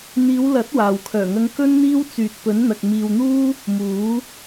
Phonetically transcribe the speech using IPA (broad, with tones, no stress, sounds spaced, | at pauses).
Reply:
n̪ iː˨˧ w l ɐ˨˥ t̚ w aː˨ w kʰ œː˨˩ ŋ ɐ˧ ŋ k ɵ˥ n n̪ iː˥ w t͡s yː˨ t̚ p ɵ˨˥ n n̪ ɐ˨ k̚ m iː˨ w n̪ uː˥ | m uː˨˥